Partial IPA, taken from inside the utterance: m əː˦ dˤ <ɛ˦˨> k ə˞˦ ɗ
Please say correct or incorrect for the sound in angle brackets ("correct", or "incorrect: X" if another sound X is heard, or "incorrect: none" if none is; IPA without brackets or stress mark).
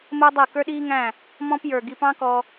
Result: correct